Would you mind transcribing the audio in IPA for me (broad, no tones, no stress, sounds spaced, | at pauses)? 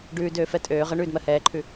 ɖ ʉː d øː f ɛ tʼ øː ʁ ə ɳ ʉː d m ɜ h ɛː ǃʰ ʉ